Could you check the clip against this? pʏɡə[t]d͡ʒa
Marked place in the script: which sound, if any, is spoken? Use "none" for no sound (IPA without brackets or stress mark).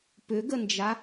n